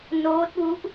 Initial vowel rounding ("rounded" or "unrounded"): rounded